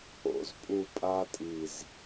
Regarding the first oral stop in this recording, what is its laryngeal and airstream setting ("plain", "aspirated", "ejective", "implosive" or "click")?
ejective